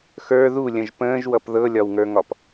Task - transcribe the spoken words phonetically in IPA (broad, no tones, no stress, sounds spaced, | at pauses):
x ə˞ ð u lʲ ə̃ ʒ p ə̃ː ʒ w ʌ p ð ɤ lʲ ɒ w ŋ ə˞ ŋ ɒ p